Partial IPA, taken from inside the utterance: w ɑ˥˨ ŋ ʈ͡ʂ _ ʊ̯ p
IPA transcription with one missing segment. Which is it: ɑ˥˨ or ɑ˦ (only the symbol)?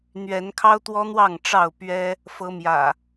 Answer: ɑ˥˨